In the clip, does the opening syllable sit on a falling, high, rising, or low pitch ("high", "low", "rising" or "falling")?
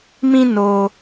high